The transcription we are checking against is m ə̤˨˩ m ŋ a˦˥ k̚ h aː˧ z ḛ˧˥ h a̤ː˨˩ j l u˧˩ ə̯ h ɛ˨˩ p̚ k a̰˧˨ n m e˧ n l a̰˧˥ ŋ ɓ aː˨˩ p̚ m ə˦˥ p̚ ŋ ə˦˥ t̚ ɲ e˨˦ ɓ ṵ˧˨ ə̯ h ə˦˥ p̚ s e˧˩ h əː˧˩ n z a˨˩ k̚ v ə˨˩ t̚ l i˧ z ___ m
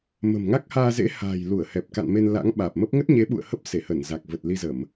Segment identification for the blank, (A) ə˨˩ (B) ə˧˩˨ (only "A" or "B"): B